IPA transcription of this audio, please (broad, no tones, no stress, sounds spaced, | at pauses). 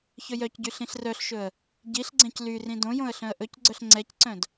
ç ɵ j œ c ɟ y ɬ ĩ ɬ r œ ɬ ʃ ɵ ə̯ | ɟ i ɬ ɡ͡ǀ ɛ̃ c l y r ĩ d õ j õ ə̯ ɬ œ̃ ə̯ ʔ ɵ c ɡ͡ǀ œ ɬ ŋ͡ǀ ɛ c ǀ œ̃ d